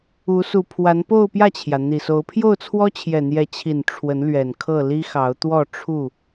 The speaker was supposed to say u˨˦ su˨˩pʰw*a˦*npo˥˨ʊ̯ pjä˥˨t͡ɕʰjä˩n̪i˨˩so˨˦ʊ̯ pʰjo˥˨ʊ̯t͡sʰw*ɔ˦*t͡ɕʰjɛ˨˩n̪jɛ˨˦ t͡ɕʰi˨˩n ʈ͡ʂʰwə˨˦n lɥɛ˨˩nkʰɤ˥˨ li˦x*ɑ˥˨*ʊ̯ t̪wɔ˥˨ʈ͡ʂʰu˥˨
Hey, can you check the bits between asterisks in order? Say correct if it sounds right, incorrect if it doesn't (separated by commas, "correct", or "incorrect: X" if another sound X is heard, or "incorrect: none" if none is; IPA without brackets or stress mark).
incorrect: a˨˦, correct, incorrect: ɑ˨˦